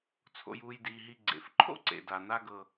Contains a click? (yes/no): yes